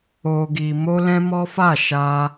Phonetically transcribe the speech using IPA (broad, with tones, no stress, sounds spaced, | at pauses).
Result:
o˧ ɡ i˧ m o˦ l ɛ̃˦ m ɔ˦ f a˦˨ ʃ a˧